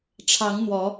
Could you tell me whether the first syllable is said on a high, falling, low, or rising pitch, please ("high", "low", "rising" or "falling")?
rising